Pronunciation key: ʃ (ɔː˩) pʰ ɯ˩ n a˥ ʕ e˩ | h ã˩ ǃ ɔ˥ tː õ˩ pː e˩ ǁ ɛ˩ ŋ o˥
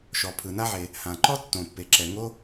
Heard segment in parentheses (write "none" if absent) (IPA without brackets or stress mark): ɔ˩